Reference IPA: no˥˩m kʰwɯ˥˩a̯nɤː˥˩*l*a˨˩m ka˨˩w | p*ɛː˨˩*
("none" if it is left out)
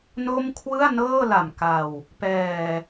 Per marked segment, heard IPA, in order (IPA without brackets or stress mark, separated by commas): l, ɛː˨˩